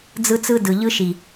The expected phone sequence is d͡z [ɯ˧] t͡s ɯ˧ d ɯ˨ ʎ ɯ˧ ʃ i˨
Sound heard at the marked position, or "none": ɯ˧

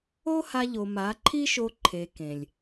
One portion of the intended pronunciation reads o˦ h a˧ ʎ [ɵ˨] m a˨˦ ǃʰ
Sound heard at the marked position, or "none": o˨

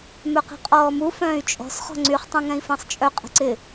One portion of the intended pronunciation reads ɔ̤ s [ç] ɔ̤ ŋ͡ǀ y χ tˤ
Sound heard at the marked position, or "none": χ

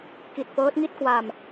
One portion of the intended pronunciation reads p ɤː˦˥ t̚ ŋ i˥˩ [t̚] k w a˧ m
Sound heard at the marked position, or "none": t̚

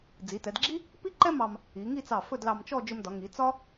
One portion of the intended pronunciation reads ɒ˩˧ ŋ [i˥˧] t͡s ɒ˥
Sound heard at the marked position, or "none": i˩˧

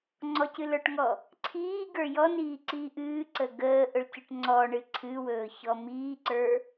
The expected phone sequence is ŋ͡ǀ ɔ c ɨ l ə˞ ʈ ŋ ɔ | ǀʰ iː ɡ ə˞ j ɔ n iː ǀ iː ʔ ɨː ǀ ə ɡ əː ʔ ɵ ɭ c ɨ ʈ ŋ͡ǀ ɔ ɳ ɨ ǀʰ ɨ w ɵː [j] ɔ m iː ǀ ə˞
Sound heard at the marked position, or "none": ç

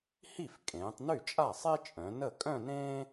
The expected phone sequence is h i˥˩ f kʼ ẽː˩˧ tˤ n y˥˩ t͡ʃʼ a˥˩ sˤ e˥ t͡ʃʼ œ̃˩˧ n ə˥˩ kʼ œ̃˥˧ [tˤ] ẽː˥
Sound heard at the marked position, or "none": n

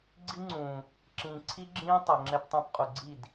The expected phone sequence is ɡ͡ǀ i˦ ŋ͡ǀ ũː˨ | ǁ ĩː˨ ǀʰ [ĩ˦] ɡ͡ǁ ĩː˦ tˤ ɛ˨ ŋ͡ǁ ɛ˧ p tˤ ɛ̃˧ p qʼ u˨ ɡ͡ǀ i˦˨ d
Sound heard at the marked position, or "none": i˦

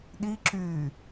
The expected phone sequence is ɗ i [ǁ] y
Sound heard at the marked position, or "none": ǁ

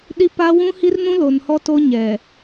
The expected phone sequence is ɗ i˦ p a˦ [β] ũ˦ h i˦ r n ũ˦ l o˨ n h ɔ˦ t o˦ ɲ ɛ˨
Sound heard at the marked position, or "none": w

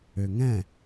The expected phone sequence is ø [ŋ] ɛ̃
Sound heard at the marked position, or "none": ŋ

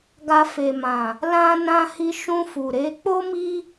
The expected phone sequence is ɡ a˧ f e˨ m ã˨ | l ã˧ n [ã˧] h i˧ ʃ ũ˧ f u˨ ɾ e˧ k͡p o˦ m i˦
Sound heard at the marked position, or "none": ã˧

